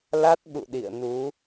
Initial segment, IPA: l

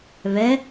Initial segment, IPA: β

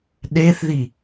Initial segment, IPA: ɗ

